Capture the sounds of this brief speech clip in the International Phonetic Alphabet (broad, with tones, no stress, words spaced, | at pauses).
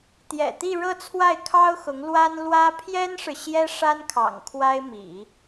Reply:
t̪jɛ̰˨˩t̪i˥˧ ɻɤ˥˧t͡sʰwa˥˩ɪ̯kʰɑ˥ʊ̯xʊ˧˥ŋ lwa˥nlwä˥ pʰjɛ˥nʂɻ̩˨ ɕjɛ˥ʂa˥nkʰɑ̰˨˩ŋ kʰwa˥ɪ̯mḭ˨˩˦